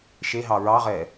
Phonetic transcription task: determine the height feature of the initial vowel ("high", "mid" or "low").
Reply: mid